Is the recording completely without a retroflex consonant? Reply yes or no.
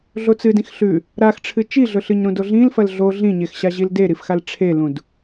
no